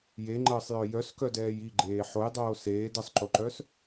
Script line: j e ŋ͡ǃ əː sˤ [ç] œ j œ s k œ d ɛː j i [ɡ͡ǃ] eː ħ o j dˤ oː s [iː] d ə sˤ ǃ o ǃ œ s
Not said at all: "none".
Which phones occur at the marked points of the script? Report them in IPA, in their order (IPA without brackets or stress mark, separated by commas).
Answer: j, ɡ͡ǃ, eː